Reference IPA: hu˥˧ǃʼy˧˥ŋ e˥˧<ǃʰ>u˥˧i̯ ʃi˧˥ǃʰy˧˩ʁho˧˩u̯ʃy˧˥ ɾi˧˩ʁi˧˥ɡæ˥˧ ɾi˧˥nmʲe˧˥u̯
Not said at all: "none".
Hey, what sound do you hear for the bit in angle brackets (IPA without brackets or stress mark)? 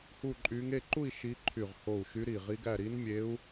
ǃ